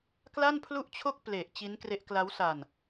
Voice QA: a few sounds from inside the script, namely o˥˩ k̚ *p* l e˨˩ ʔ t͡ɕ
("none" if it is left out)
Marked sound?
p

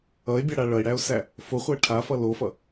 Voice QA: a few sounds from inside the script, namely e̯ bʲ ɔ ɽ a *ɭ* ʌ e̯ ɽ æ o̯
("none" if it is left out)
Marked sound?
ɭ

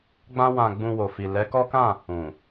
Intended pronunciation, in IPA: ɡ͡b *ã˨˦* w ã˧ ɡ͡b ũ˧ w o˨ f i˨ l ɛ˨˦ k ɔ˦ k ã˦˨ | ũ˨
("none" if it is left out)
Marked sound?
ã˦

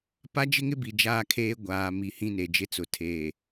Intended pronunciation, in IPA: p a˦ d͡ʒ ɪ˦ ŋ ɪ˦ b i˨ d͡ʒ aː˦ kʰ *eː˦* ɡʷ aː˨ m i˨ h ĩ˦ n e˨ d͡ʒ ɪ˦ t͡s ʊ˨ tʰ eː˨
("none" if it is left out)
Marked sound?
eː˦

